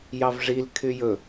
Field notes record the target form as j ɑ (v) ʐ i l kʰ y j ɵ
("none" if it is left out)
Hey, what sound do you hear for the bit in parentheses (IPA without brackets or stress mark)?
v